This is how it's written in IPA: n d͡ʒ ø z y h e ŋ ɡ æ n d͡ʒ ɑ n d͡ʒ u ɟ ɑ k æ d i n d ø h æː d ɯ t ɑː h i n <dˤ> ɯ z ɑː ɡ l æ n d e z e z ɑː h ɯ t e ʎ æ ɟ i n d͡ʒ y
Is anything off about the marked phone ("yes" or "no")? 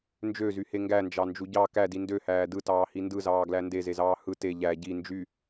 yes